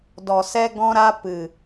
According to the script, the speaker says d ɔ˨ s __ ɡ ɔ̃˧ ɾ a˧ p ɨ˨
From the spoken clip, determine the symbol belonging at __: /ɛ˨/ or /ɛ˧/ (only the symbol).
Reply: ɛ˧